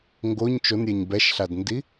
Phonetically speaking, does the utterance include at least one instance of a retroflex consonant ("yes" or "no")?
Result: no